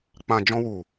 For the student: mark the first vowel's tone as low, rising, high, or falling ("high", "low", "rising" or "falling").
low